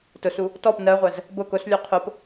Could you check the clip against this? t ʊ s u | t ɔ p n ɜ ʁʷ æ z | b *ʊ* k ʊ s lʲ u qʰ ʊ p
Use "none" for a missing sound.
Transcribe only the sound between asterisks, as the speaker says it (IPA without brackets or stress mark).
ʊ